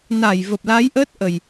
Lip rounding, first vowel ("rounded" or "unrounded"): unrounded